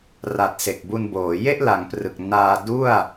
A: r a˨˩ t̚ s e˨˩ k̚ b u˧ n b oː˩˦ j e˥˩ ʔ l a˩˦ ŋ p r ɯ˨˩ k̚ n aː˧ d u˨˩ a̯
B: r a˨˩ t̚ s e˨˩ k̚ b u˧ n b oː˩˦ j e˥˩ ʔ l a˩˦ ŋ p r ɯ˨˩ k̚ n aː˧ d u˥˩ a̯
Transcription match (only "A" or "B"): B